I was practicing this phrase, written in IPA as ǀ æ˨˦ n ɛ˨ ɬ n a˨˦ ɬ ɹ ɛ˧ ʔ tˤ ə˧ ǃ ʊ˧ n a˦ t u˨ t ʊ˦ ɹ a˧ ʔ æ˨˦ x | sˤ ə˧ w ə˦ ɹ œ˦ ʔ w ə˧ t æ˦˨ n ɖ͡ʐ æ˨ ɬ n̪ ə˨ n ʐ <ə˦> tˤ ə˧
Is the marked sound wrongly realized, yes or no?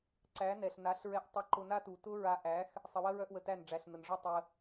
yes